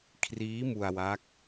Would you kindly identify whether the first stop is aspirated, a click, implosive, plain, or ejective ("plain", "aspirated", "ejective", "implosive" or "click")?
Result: aspirated